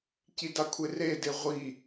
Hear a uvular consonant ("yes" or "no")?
yes